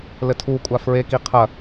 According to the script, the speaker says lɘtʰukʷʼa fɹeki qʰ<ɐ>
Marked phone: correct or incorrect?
correct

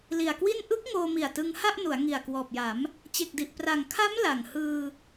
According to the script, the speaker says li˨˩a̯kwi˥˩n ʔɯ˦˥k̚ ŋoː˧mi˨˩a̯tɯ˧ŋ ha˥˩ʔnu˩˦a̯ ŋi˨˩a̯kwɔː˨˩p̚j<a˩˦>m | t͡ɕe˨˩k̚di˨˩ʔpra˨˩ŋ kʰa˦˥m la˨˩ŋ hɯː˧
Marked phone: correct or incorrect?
correct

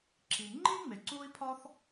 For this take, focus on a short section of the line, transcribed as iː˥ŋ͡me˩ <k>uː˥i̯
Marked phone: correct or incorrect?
incorrect: ǀ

